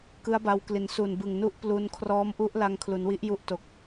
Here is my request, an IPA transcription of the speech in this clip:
kɯ˦˥a̯ba˧w kli˩˦nsu˨˩nbɯ˨˩ŋnu˦˥ʔ plu˧n kʰrɔː˦˥mʔu˦˥ʔla˧ŋ kʰlu˩˦nwi˦˥ʔju˦˥ʔto˨˩k̚

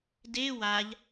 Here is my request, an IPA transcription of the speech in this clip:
de waʎ

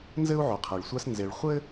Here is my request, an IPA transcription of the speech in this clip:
nzɘ˥u̯ʕo˩qʰɛ˩ɭsʷa˦s nze˨ɭ χʷɘ˥

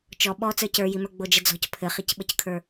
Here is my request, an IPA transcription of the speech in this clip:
t͡ʃɔ ɓɔ t͡sə˞cə˞jimə˞ ɡ͡bod͡ʒəd͡zɔ̤c pʰɘχicɓəckʰə˞

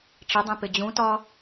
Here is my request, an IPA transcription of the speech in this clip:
ʈ͡ʂədˤẽ pɪd͡ʑũtɒ

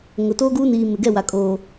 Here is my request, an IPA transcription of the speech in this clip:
ŋʊ˨ toː˦ɡuː˦niː˨ mɪ˨ɡɛ˦˨wa˨ kʼoː˨

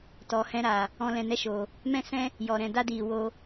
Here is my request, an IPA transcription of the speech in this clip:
tɔ˨hɛ̃˧ɾaː˨ | ɔ̃˧ lɛ̃˧nɛ˦ʃoː˨ | mɛ̃˦sɛ̃˦ | jɔ˨ ɾɛ̃˨ da˦diː˨woː˧

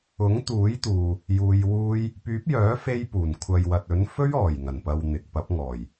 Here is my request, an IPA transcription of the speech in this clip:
ʊ˨˥ŋt̪uː˨˥jt̪uː˨ | juː˧jwuː˥j | pyː˨˥p̚jœː˨˥fe˧jpuː˨˩n kʷʰɐ˨jwɐ˨t̚ɵ˨˥n fɵ˥ɥɔː˨˩jŋɐ˨˩npɐ˨w n̪ɪ˨k̚pɐ˨˥p̚ ŋɔː˨˩j

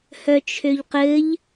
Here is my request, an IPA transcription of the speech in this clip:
hœt͡ʃʰøʎqɘʎ

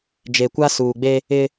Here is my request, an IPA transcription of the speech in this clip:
d͡ʒe˨kʷa˦ suː˨ɡ͡be˦ | ɪ˦

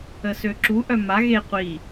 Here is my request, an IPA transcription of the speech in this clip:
əsøǁu ʔœma ɣe qʷi

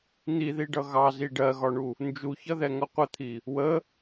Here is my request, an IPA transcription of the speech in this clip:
n̪iðiɖʌ ɣɑzi ɖɜɣɒɳu | nd͡ʒuçʌðɛŋʌ qʷət̪ʰi | wə

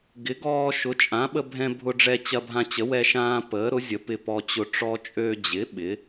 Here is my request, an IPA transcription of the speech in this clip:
ɡɪ˩˥ɡɔː˧ʃʊ˩˥ t͡ʃʼã˩˥ɓə˧bʱɛ̃˧ bʱʊ˧ɖ͡ʐɛ˧ t͡ɕɐ˧bʱã˧t͡ɕə˩˥ wɛ˧ʃãː˧ pəː˩˥ɾʊ˩˥zʲə˩˥ pɪ˧pɔ˧t͡ɕʊ˧ ʈ͡ʂɔ˧t͡ʃʼø˧d͡ʑɪ˩˥ ɓɪ˩˥

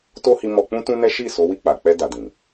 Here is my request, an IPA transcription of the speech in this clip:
to˦hi˧ mɔ˧k͡pũ˦tũ˦nɛ˦ ʃi˦˨ so˨˦wi˦˨k͡pa˨k͡pɛ˧ da˨dĩ˨

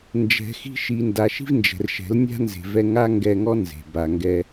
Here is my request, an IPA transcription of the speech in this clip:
nd͡ʒɛ̤˨xi̤˧ʃi˨nda˨ ʃi̤˦vnd͡ʒɛ̤˨rʃɛ̤˨˦lnʲa̤˦ nze̤˨vɛ˧ŋa˦ ŋɡɛ˧ŋɔ˦ nze̤˨ba˧ŋɡɛ˦

